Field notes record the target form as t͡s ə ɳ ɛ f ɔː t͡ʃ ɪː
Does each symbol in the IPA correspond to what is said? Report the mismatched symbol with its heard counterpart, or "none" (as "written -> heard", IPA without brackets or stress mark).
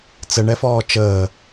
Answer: ɪː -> əː